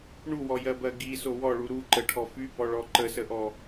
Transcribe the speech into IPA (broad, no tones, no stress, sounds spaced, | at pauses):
ɳ u w ɔ j ɜ b ɜ ɡ i s o w ɔ ɭ u ɾ u ǃ ə ʈʰ ɔ f y b ɔ ɭ ɔ ǃ ə s ə ʔ ɔ